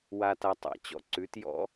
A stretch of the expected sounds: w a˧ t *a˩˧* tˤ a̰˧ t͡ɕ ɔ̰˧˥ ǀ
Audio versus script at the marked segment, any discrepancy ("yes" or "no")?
yes